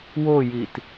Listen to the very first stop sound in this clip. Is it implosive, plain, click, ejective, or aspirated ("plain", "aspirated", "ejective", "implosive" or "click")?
plain